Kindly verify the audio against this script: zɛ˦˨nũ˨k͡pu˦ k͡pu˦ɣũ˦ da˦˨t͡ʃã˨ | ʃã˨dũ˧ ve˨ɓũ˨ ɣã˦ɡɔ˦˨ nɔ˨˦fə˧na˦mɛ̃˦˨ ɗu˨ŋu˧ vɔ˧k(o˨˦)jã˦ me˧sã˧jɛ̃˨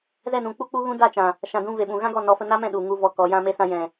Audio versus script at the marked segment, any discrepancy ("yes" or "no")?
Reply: yes